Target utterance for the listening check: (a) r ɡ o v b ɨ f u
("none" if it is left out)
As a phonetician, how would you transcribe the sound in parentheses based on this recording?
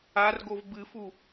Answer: a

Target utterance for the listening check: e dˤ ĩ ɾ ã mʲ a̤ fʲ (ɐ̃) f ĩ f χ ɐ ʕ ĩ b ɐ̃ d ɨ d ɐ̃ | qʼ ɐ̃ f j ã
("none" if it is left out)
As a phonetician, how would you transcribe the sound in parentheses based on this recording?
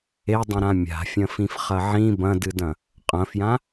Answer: ɐ̃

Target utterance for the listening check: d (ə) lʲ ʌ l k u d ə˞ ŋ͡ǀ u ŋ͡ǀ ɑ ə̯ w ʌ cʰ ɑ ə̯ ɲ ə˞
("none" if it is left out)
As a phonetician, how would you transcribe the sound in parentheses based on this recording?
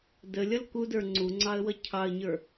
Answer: ə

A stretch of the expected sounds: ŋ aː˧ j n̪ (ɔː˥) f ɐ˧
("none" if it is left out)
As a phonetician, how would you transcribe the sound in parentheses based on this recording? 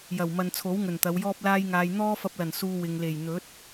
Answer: ɔː˥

